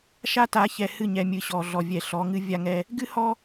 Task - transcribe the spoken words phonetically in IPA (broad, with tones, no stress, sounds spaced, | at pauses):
ʃ a˦ t a˨˦ ç ɛ˨ h ɨ˦˨ ɲ ɛ˨ mʲ ɨ˨ ɕ ɔ˨ ɮ ɔ˨ vʲ ɛ˨ ɬ ɔ˨˦ ŋ ɨ˦ vʲ a˦ ŋ ɛ˦ | ɡ ɨ˦ h ɔ˦